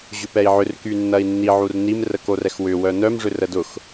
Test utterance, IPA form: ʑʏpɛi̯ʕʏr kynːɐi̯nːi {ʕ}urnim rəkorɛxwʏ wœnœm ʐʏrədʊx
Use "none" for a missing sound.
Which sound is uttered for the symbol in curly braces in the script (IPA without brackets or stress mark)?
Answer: ʕ